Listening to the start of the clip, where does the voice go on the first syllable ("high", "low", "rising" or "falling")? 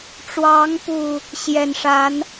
rising